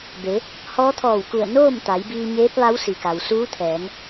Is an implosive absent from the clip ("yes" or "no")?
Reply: yes